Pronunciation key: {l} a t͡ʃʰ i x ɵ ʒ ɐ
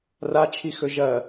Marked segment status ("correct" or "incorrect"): incorrect